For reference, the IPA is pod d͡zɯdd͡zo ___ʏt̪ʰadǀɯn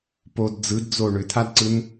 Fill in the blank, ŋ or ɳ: ɳ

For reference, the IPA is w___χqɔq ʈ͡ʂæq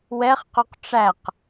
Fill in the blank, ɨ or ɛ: ɛ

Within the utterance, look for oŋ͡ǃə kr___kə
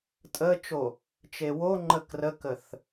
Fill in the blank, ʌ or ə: ə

